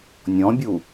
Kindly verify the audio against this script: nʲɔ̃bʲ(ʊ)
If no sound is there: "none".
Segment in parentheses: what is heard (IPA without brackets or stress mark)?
u